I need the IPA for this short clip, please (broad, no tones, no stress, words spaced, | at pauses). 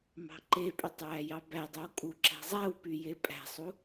mɑ̤ǃepʼytˤ wæjɑbædˤøw kʼuǁæ̤zˤæwpy jepʼæ̤sˤu